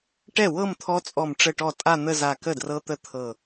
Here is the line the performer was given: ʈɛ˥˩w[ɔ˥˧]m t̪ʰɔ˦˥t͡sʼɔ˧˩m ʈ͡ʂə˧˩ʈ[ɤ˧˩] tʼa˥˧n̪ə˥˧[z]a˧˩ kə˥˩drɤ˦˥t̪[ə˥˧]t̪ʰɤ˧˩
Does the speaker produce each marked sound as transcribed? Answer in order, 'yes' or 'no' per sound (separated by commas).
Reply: no, no, yes, no